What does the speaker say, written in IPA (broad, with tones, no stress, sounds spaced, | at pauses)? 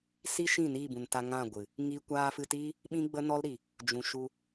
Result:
s i˦ ʃ ĩ˦˨ n iː˦˨ b ũ˨ n t a˧ ŋ ã˦˨ ɡʷ ɨ˨ | ŋ i˧ kʷ aː˧ f ɨ˧ t iː˦ | ɓ ĩ˦ ɡ͡b ə˦ n ɔ˦ l ɾ i˨ | d͡ʒ ũ˨ ʃ u˧